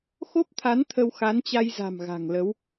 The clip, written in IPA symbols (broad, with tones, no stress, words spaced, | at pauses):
xo˦˥p̚t̪ʰa˨˦n t̪ʰə˧wxa˨˦nt͡ɕa˧jza̤˨˩m ɣa̤˨˩ŋlə˨˦w